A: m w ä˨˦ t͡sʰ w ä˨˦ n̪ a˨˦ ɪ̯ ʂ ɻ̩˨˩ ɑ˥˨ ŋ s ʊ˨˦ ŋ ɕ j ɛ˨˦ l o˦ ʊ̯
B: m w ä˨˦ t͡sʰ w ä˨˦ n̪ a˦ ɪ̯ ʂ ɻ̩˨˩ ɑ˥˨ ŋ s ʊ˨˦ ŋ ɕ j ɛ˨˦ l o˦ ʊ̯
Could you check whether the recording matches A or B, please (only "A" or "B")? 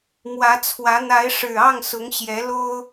A